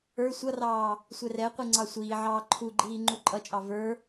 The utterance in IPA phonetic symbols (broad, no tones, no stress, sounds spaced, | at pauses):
ə˞ sʷ ʌ r ɑː | sʷ ɛ r ɛ qʷ i ŋ͡ǀ ɑ sʷ iː ʕ ɑː ǃʰ u ɡ͡ǃ iː ŋ͡ǃ u ǃʼ ʌ t͡ʃʼ ɑ v ə˞